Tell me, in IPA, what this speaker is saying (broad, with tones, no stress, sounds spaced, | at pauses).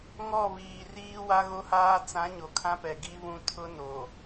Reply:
ŋ ɔ˦˨ β iː˨ r iː˦ w a˦ ɣ o˦ h aː˦ t͡s ã˨˦ ɲ o˨ kʰ ã˦ p ɛ˨ ɡ i˦ β ũ˦ tʰ ʊ˦ n o˨